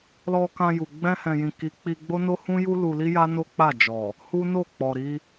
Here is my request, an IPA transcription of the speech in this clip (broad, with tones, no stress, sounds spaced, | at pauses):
l ɔ˧ k ã˧ j u˨ ɡ͡b ɛ̃˧ h ɛ̃˨ j ĩ˨ k i˨˦ k͡p i˧ ɡ͡b o˦ n o˦ h ũ˦ j u˦ l u˧ l i˦ j a˦ n o˦ k͡p a˦˨ d͡ʒ ɔ˨ | h u˦ n o˦˨ k͡p ɔ˨ ɾ i˧